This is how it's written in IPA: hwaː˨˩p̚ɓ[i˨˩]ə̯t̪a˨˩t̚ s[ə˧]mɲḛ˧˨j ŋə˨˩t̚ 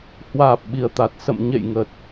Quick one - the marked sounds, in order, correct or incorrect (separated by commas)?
correct, incorrect